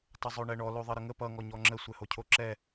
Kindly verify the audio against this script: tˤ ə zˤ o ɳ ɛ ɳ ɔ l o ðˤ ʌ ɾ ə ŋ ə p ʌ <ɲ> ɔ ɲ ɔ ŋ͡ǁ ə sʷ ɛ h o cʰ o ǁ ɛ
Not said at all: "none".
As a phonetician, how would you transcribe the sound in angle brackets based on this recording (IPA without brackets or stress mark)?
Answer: ŋ